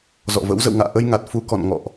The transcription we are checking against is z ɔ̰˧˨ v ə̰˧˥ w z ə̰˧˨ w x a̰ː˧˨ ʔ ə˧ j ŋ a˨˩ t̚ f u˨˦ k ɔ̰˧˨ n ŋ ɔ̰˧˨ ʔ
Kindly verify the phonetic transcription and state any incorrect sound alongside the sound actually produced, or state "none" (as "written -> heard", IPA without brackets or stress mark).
x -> ŋ